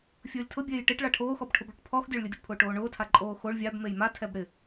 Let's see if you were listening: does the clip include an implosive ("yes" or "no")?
no